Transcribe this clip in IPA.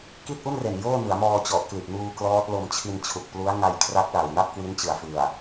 k i˥˩ t̚ ʔ u˥˩ n r e˨˩ n j oː˥˩ n ɯ˩˦ a̯ m ɔː˧ t͡ɕ ɔ˨˩ ʔ k l i˨˩ ʔ n uː˧ k l ɔː˦˥ t̚ l o˧ m t͡ɕʰ i˧ n t͡ɕʰ u˨˩ k̚ p l u˦˥ a̯ ŋ a˧ j kʰ r a˦˥ k̚ l a˨˩ w n a˥˩ p̚ k w i˦˥ n t͡ɕ ɯ˨˩ a̯ f ɯ˨˩ a̯

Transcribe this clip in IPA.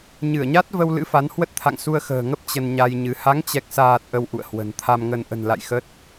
ɲ ɨ˧˩ ə̯ ɲ a˦˥ t̚ v ə˧ w l ɨ̰˧˥ f a˨˦ n h w ə˦˥ t̚ t̪ʰ a̰˧˨ ŋ s u˧ ə̯ x ə̤ː˨˩ ŋ ə˦˥ p̚ t͡ɕ ə˧ n ɲ a˧ j ɲ ɨ˨˦ h a˨˦ ŋ t͡ɕ ɛ˨˩ k̚ s aː˨˩ t̚ ʔ ə˧ w ʔ ṵ˧˨ ə̯ h w ə̤˨˩ n t̪ʰ a˧ m ŋ ə˧ n ʔ ə̤˨˩ n l a̰˧˨ j x ə˦˥ t̚

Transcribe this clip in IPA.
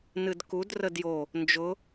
n ɨ d k u d r ə d j o | n d͡ʒ ʊ

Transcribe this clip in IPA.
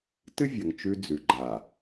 t ɨ˦ vʲ ɐ˨ ŋ t͡ʃ ʉ˦ d͡z ʉ˨ ɡ͡ǃ aː˨

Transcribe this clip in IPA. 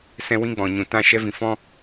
s ɛ̃˦ w ĩ˦ ɡ͡b ɔ̃˨ ɲ ũ˨ t ã˦˨ ʃ ɛ˦ v ĩ˨˦ f ɔ̃˦

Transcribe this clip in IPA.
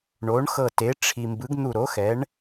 ɳ o˩˥ ɳ x ɤ˧˩ t e˩˥ ʈ͡ʂʰ i˩ m b ɯ˩˥ ɡ n̪ u˧˩ ɾ o˩˥ x ɛ˩˥ ɳ

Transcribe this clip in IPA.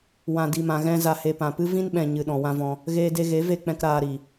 w ã˨ d i˨ m ã˨ ɣ ɛ̃˧ z a˨ h e˨ p ã˨ p ɨ˦ v ĩ˦ n ɓ ɛ̃˨ ɲ ɨ˨ ɗ ɔ̃˨ w ã˦ v ɔ̃˧ | ɣ eː˧ d e˧ ɣ e˨˦ v e˧ k͡p ɛ̃˧ k ɾ aː˧ ɾ i˨

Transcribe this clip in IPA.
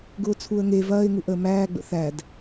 ɡ ʊː t͡sʰ u ə̯ ŋ e v ɐː ɪ̯ ŋ u ʔ əː m æː ɡ͡b ə̰ θ æ d

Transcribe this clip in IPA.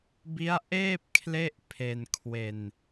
b i˦˥ a̯ ʔ eː˥˩ p̚ kʰ l e˥˩ ʔ pʰ e˧ n kʰ w e˧ n

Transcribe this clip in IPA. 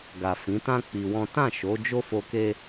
ɡ a˨ f ĩ˨˦ t ã˦ k͡p i˧ w ɔ̃˦ t ã˦˨ ʃ o˨˦ d͡ʒ o˦ f o˧ k e˦

